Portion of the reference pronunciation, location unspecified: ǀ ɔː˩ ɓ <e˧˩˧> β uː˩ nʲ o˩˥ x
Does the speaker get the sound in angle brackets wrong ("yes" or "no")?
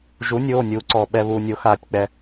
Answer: yes